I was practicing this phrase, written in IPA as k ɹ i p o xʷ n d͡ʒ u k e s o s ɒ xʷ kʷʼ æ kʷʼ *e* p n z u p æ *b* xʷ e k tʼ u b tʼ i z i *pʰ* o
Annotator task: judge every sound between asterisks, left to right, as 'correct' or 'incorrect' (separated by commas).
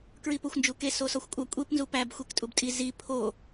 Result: correct, correct, correct